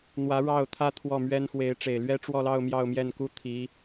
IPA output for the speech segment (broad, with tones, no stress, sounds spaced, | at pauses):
n̪ w ä˧˥ ɻ ɑ˥˩ ʊ̯ t̪ʰ ä˥ t̪ʰ w ɔ˥˩ m ɥ ɛ˥ n x w e˧˥ ɪ̯ ʈ͡ʂ e˨˩ ɪ̯ l ɥ ɛ˥ ʈ͡ʂ w ɔ˥˧ l ɑ˥˧ ʊ̯ m j ɑ˥˧ ʊ̯ m j ɛ˥˩ n k u˥ t̪ʰ i˧˥